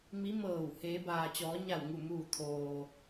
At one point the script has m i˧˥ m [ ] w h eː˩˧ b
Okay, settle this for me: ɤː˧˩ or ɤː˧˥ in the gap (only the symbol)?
ɤː˧˩